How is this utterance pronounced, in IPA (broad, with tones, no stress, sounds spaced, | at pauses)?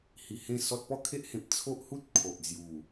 h i˧ h ẽ˥˧ s ɔ˦ t̚ p ɔ˥˧ kʰ e˦ ʔ h ẽ˨ p̚ t͡sʰ o˦ ʔ h u˦ t̚ kʰ o˨ ʔ d͡z j u˨˩